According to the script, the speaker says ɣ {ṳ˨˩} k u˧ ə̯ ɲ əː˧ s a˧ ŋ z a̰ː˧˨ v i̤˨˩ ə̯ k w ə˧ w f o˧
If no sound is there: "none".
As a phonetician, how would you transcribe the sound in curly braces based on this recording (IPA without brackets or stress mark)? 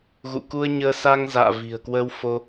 ṵ˧˨